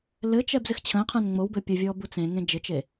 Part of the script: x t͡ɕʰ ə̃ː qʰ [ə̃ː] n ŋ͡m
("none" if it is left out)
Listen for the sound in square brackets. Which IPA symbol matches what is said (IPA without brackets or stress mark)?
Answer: ə̃ː